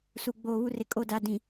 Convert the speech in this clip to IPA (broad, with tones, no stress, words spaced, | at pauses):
su˨ ɡ͡boː˨ βu˦rɪ˨kʼo˦˨ da˨ dĩ˨